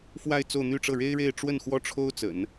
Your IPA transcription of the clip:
f w a˥˧ ɪ̯ t͡s o˥˧ ʊ̯ n̪ y˥˧ ʈ͡ʂ ɤ˥˩ ɻ e˥ ɪ̯ ɻ e˥˧ ɪ̯ ʈ͡ʂ w ə˥˩ n x w ɔ˥ ʈ͡ʂʰ o˥ ʊ̯ t͡s ə̰˨˩˦ n

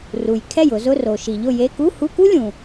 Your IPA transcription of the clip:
r u˩ j kʰ ɛ˥˩ j ʊ˩˧ z ʊ˧˥˧ r o˩ ʃ i˩ ʎ ʊ˥˩ j e˧˥˧ k u˧˥˧ h u˧˥˧ k u˥ lʲ ũ˩

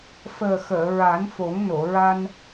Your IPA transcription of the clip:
f əː˨˩ x əː˨˩˨ ɹ a˨˩˦ n f o˨˩˦ ŋ n o˨˩˨ ɹ a˧ n

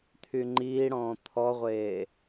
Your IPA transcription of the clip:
t̪ʰ y ŋ͡ǃ iː ɽ ɔ̃ː t̪ʰ ɔ ʁʷ eː

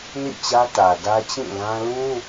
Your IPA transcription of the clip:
n ḭ˦˨ t͡ɕ ä˦ t ä˨ d ä˦ t͡ɕ ĩ˦˨ l ã˦ l ũ˦

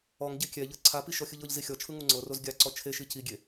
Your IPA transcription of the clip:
ɔ ŋ ɟ e kʲ ɛ ʎ ɤ ǀʰ a p i ʃ ɔ xʲ ɯ ʎ ɤ ʎ z i xʲ ɔ t͡ʃʰ ɯ ŋ u ŋ͡ǀ ɤ r o z ɡʲ a ǀ ɔ t͡ʃʰ e ʃ i c i ɡʲ e

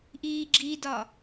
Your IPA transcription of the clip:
ʔ iː ɡ͡ǁ i d ɒ

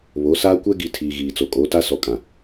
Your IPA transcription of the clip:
β o˨˦ s aː˦ kʷ ɛ˦ ɡ i˨ tʰ iː˨ ɣ iː˨ t͡s o˨ kʼ oː˨˦ t a˦ s ɔ˨ kʼ ã˨

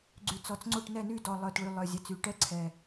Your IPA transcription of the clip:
ɡ͡ǀ y˨˩ t͡s ɔ˨˩ t͡s ŋ͡ǀ o˦˨ ʈ n ɛ˦˨ n y˦˨ d ɔ˨˩ lˠ œ˨˩ t ɭ y˨˩ lˠ œ˨˩ zʲ ɛ˨˩ t͡s y˨˩ ʈ ɛ˦˥ ǀʰ ɛ˨˩

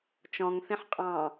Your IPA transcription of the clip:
t͡ʃ ɔ̃ ŋ θ ĩ ħ qʼ ɑ̃

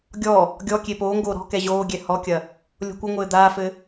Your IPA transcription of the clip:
ɡʲ ɔ | ɡʲ ɔ kʲ e p oː ŋ ɡ oː ɾ ɔ̤ k ɛ ʑ oː ɡʲ ɛ h ɔ kʲ ɐ | lʲ o̤ kʷ ɘ ŋʷ ɘː d̪ aː f ɘ

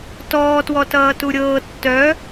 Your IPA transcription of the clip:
t ɔː t w ɔ t ʌː t u ɾʲ ɤː tː œ

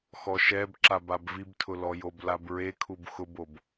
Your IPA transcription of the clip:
x ɔ ʃ ɛ b ǁ a b a b v i b tʰ ʊ l ɔ j o b l a b ɹ e kʰ u b x ʊ b o b

